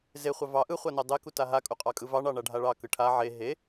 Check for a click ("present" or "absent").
absent